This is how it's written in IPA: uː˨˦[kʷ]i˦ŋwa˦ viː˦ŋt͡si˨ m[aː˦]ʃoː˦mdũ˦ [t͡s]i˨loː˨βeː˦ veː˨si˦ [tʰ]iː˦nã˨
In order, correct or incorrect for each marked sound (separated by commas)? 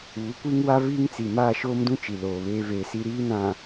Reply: correct, incorrect, incorrect, incorrect